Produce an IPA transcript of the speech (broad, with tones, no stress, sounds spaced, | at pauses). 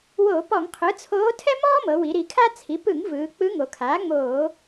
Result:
w o˧˩˧ p ɔ˧˩˧ ŋ qʰ ɯ˩˥ t͡sʰ oː˧˥ tʰ ɛ˥ m ɔː˥ m ɤ˩˧ w i˩˧ ɾ i˩˧ kʰ a˥ t͡sʰ i˩˥ p ɯ˧˩˧ ŋ v ɯː˩˧ k͡p ɯ˧˥ ŋ o˩˧ kʰ aː˩˥ ŋ͡m oː˧˩˧